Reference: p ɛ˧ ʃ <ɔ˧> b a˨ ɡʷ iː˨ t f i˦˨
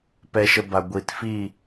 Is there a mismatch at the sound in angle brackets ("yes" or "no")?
yes